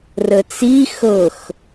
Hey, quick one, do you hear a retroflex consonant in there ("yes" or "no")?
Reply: no